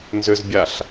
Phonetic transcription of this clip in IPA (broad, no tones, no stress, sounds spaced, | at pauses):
n z ʏ z bʲ a ɬ